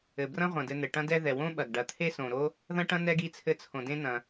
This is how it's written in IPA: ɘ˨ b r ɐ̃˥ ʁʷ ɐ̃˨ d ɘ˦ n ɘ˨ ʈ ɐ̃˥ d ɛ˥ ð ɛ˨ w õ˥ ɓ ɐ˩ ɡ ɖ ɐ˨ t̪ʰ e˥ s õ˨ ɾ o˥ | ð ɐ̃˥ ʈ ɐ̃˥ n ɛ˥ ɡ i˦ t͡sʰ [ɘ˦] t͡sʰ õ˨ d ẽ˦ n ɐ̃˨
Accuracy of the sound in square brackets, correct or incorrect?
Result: correct